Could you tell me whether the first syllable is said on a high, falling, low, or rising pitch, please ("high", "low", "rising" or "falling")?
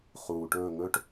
low